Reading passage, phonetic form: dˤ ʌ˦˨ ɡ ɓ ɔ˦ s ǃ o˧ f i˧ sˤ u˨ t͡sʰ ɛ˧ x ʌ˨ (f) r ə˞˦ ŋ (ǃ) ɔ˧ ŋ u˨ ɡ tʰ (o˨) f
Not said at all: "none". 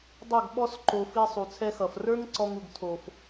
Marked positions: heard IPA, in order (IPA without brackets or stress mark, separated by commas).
f, ǀ, o˨